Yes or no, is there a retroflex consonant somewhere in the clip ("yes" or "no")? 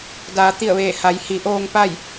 no